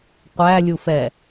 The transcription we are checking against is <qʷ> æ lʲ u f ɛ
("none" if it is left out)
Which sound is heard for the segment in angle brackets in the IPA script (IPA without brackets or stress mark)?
qʷ